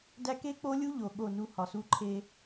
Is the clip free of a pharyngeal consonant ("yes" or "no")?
yes